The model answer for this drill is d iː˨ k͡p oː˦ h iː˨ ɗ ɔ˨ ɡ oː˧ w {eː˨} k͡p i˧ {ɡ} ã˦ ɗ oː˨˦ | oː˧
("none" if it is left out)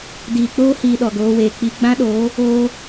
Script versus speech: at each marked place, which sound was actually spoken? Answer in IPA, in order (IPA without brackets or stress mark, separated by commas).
eː˨, ɡ͡b